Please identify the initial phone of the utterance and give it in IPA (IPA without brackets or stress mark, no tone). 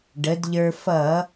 ɖ